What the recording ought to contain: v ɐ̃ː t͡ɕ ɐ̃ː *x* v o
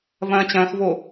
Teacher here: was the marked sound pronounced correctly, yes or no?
yes